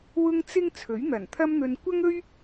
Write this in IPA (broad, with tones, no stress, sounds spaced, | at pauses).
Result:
w ʊ˥ ŋ t͡s ɪ˥ ŋ t͡sʰ ɵ˨˥ ɥ n̪ ɐ˨˩ n t̪ʰ ɐ˥ m n̪ ɵ˧ n kʷ ɐ˥ ŋ ɵ˥ ɥ